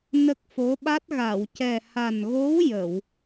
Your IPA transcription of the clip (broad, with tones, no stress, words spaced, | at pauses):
nə˦˥k̚fo˧˥ɓa˦˥t̚ ɣa˨˩˨wcɛ˨˩ ha˨˩nɣo˧˥w jə˨˩˨w